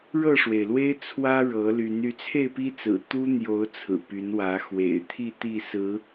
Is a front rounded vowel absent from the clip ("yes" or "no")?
no